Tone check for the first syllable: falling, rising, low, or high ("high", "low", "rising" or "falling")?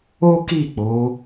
high